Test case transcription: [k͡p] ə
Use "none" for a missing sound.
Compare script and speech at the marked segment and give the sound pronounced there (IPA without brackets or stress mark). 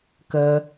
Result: k